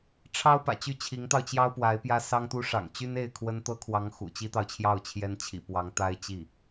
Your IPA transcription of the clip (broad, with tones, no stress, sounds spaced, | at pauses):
ʈ͡ʂʰ ɑ˥ ʊ̯ p ä̰˨˩ t͡ɕ y˥˩ t͡ɕʰ i˧˥ ŋ t̪ ɑ˧ ʊ̯ t͡ɕ j ɑ˥ ʊ̯ p w a˧˥ ɪ̯ p j ä˥ s ɑ˥ ŋ t̪ u˥ ʂ ɑ̰˨˩ ŋ t͡ɕ y˥ n e˥˩ ɪ̯ kʰ w ə˥ n t̪ ɤ˥ kʰ w ɑ˧˥ ŋ x ṵ˨˩ t͡ɕ i˥ t̪ ɑ˨ ʊ̯ t͡ɕʰ j ɑ˥˩ ʊ̯ t͡ɕʰ j ɛ˥ n t͡ɕʰ ḭ˨˩ p w ɑ˧˥ ŋ t̪ a˥ ɪ̯ t͡ɕ i˥˩